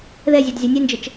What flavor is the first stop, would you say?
plain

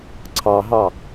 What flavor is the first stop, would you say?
click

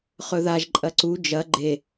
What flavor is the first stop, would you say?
click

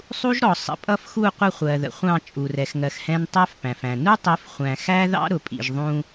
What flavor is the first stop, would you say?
ejective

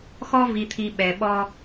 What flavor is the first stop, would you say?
aspirated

